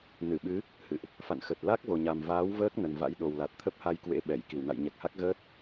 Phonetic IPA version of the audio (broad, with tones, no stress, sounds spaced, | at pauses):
n ɨ˧˩ ɓ ɨ˨˦ | h ɨ̰˧˨ ʔ | f a̰˧˨ n x ə˨˩ t̚ l a˦˥ k̚ v o˨˩ ɲ a˨˩ m v aː˨˦ w v əː˦˥ k̚ n ə˨˩ n v a̰˧˥ j ɗ o˨˩ w l a˨˩ t̚ t̪ʰ ə˦˥ p̚ h a˧ j k w ḛ˧˥ ɓ ɛ˧˩ j k i˧˩ w n a̰˧˨ j ɲ ɛ˨˩ k̚ h a˦˥ k̚ ɣ əː˦˥ t̚